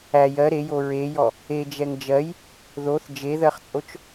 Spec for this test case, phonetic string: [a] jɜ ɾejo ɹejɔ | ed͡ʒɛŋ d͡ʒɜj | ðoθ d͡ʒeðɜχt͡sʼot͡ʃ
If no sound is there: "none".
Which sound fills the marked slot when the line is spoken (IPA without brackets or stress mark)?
æ